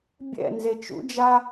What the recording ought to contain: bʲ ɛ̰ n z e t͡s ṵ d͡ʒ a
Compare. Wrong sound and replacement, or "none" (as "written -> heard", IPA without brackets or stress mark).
t͡s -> t͡ʃ